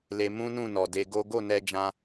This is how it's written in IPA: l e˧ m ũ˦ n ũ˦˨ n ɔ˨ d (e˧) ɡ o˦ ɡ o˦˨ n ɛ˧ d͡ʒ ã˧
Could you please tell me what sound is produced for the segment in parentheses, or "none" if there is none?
e˧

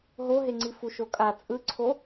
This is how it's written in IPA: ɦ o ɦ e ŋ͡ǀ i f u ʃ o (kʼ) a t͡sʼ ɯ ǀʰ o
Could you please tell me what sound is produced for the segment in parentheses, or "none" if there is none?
kʼ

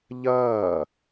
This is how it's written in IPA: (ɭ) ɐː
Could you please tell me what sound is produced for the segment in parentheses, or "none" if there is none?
ʎ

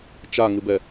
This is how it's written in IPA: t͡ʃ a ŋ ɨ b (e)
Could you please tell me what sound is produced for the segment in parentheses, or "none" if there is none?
ɛ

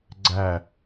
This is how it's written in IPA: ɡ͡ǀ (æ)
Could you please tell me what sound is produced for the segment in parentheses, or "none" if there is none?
æ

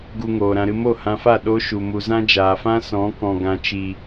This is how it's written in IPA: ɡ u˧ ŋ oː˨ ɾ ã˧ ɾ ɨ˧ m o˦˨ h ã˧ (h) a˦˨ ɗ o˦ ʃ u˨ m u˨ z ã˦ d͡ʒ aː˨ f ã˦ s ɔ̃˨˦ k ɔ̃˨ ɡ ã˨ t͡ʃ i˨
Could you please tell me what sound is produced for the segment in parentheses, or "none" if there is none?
f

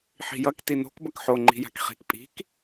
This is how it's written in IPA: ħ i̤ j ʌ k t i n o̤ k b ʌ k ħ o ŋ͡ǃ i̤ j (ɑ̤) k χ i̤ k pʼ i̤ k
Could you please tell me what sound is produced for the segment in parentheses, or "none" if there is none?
a̤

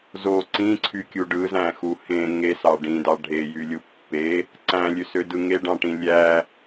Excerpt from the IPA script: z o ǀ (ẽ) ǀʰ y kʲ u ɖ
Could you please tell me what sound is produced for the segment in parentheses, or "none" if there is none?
ĩ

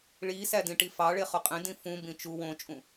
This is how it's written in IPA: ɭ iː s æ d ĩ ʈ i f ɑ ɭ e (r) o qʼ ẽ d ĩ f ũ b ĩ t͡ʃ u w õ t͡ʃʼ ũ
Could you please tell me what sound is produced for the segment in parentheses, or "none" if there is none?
χ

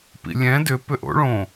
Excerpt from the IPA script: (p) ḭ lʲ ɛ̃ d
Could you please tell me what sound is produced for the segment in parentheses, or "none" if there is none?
p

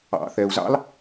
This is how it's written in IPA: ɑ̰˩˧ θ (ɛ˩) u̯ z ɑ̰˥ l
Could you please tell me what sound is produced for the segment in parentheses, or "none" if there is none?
ɛ˩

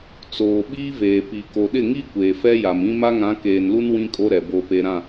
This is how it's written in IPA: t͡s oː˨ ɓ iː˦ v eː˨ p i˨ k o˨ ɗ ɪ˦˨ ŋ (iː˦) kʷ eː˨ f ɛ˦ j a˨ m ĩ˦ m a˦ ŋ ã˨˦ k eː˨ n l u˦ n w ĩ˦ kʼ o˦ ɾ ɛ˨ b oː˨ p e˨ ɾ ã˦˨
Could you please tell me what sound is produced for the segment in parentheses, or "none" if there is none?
i˦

